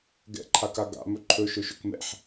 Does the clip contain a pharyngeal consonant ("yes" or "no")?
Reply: yes